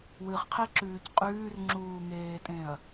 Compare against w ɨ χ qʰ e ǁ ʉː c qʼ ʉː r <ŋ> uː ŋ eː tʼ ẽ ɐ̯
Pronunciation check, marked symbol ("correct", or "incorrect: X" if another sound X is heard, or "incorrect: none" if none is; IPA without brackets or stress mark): incorrect: ŋ͡ǁ